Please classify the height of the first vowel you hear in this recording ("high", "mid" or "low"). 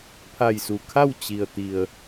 low